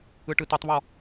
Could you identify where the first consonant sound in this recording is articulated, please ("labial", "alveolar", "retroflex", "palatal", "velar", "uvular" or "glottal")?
retroflex